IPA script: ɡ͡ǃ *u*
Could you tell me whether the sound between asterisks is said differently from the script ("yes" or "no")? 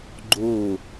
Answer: yes